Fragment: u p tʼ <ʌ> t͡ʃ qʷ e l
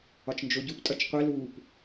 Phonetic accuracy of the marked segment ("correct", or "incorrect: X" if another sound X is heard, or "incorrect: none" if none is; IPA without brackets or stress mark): correct